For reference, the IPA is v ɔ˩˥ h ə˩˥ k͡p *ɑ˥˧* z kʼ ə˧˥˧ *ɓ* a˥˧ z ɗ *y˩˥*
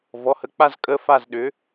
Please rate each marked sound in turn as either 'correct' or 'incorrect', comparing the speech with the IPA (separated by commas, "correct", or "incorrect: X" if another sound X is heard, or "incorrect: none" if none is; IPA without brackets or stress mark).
incorrect: a˥˧, incorrect: f, incorrect: ʏ˩˥